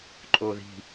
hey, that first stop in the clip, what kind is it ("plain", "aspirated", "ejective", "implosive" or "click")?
click